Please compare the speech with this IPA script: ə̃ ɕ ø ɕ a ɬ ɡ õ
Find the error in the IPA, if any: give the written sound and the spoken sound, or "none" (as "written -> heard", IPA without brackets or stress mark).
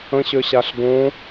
none